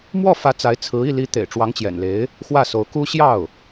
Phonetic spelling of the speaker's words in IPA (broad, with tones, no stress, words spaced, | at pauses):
mwɔ˥˩fä˧˥ t͡sa˧˥ɪ̯t͡sʰɹ̩˧˥ i˥˩li˧˥t̪ḛ˨˩ɪ̯ ʈ͡ʂwɑ˧˥ŋt͡ɕjɛ̰˨˩nle˧˥ɪ̯ | xwä˥˩so˧˥ʊ̯ ku˥ ɕjɑ˥˩ʊ̯